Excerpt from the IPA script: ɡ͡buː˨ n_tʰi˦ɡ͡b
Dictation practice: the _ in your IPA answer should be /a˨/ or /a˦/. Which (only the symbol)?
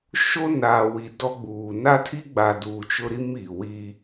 a˦